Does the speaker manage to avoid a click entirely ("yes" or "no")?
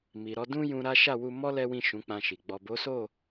yes